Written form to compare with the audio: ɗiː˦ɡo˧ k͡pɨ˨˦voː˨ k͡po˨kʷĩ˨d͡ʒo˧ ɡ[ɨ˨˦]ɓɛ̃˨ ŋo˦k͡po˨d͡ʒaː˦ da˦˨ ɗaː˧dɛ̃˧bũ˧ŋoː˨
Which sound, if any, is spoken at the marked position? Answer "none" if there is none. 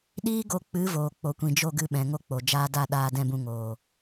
ɨ˨˦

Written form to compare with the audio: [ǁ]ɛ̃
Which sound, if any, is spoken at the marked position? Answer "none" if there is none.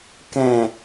k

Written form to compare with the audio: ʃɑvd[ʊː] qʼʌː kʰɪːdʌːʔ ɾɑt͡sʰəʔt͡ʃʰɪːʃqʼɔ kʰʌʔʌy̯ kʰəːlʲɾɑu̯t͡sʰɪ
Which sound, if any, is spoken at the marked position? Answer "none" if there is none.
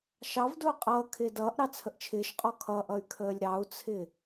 ʊː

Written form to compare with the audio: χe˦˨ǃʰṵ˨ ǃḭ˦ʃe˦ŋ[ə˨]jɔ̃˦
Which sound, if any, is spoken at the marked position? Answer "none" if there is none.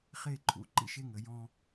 ə˨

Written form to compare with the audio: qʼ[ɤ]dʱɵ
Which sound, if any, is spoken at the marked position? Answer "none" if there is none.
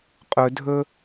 ɵ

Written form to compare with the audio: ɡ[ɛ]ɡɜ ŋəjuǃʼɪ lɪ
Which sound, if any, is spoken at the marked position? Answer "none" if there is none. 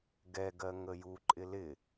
ɛ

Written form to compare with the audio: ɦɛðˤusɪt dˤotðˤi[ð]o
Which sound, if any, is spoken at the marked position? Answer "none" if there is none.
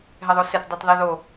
ð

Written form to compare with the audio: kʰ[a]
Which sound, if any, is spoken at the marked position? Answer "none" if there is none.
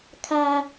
a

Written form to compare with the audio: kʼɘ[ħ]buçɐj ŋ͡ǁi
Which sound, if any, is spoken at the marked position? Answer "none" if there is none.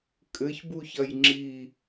ç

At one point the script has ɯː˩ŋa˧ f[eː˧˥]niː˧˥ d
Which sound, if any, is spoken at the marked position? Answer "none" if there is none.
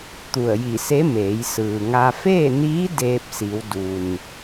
eː˥˨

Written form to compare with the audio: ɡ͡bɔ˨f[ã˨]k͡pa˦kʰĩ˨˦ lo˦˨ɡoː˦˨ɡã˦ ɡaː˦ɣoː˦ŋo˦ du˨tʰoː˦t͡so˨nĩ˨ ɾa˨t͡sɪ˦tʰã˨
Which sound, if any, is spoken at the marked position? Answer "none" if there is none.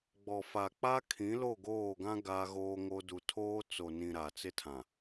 a˨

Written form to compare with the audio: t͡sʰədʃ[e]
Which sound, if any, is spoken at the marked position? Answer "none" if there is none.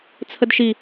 i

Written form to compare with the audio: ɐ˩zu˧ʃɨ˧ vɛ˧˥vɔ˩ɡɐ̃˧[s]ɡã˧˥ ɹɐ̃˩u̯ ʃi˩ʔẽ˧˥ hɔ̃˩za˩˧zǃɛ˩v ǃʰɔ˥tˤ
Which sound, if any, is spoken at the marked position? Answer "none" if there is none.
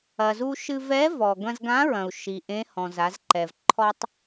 z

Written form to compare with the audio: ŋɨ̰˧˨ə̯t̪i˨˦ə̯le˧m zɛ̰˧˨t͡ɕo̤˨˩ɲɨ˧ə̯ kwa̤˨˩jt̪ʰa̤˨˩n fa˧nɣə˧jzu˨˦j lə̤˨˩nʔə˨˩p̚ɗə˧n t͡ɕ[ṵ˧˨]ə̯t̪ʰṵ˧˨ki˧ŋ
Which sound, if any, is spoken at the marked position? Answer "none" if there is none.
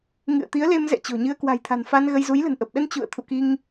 ṵ˧˨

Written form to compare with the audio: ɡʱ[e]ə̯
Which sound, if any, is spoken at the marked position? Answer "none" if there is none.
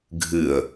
ɨ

